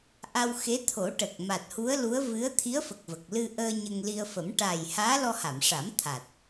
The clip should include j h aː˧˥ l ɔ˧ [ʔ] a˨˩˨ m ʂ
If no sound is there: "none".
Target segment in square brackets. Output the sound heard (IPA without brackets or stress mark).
h